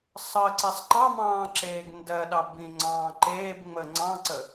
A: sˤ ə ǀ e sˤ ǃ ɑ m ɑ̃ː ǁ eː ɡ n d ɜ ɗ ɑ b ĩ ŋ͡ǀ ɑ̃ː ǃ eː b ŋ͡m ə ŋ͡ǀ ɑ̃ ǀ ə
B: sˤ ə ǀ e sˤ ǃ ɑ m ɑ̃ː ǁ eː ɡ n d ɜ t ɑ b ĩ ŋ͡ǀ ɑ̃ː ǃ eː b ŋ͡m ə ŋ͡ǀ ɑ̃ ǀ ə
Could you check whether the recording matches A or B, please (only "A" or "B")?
A